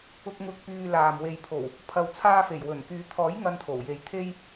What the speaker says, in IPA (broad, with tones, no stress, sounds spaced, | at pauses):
ʊ˨ k̚ ŋ ʊ˨ k̚ p yː˧ l aː˨ m w e˨ j pʰ o˨˩ w | pʰ ɐ˨ w t͡sʰ aː˧ f e˨˩ j w ɵ˨˩ n k yː˨˧ t̪ʰ ɔː˨˥ j ŋ ɐ˧ n t̪ʰ o˨˩ w j e˨˧ j t̪ʰ e˧ j